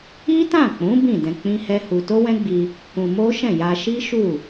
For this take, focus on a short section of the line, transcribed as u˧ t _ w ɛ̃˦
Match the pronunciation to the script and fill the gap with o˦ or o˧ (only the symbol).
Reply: o˦